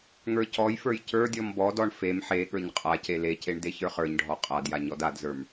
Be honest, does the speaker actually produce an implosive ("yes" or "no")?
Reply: yes